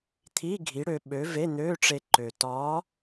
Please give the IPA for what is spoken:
t̪ʰi˧˥˧ɡʱi˨˥ ɽø˧ɓø˨˥ ve˧˥˧n̪øː˧˥˧ʈ͡ʂe˧ǃø˨˩ tɒː˨˥

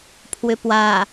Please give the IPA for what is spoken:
pʰwʏpwa

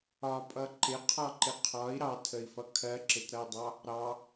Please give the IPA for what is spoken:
ɒpʼʌ ǃɪqʰɒǃɪ qʰɒi̯ ɾɑtʰəi̯fʌ kʰɜǁɪtɾʌi̯dˤɑ | ɾɑ

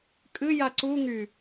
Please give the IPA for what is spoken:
kʼɨja ǀu ŋy

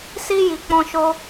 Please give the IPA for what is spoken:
si˧ ji˨k͡pɔ̃˧ʃo˦

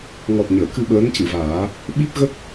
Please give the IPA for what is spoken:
ŋɔ˨˩t̚ ɲəː˨˩˨kɨ˧ ɓəː˧˥ncɨ˨˩˨vaː˨˩˦ | ɓi˦˥p̚ɣə˦˥k̚

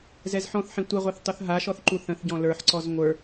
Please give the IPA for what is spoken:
zɛzħɔ̃θħĩ tʷɛʁʷɛθ tˤuθɦaʃɔθ ǃuθə̃θɟɔ̃ lə˞ħǀɔz ŋʷə˞

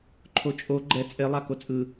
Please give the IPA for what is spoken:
ǃʰot͡ʃʼo ɡ͡ǃɛ t͡sʼelˠa kot͡sʼɯ

